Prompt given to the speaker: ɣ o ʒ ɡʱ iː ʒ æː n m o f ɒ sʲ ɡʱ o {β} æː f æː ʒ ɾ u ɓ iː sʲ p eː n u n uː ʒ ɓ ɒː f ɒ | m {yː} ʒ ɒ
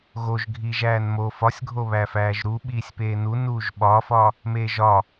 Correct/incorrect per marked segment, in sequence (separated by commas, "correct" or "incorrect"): correct, incorrect